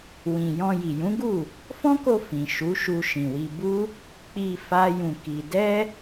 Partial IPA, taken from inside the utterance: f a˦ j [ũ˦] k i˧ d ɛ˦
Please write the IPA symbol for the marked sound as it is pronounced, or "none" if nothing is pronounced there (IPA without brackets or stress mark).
ũ˧